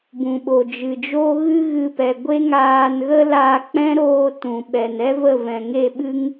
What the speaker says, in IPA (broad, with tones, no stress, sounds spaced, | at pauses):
b ũ˨ ɓ o˨ d͡ʒ ɨ˨ d͡ʒ o˦ ɣ ɨ˦ ɣ ɨ˧ p ɛ˨ ɡʷ e˦ ŋ aː˧ n ɣ ə˦ l aː˧ k͡p ɛ̃˦ ɾ oː˧ t ũ˨ ɓ ɛ˨ n ɛ˦ v ə˦˨ v ɛ̃˨ ŋ e˦˨ ɓ ɨ˦ ŋ